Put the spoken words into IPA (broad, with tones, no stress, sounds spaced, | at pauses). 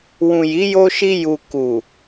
w ũ˨ j i˨˦ j o˧ ʃ i˧ j u˨ k u˨